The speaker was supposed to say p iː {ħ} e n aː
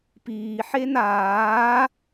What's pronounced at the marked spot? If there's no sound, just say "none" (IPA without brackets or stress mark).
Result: ħ